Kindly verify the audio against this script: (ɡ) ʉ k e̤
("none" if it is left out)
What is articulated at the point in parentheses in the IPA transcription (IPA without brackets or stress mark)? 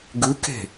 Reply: ɡ